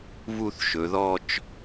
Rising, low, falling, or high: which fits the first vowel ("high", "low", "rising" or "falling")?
falling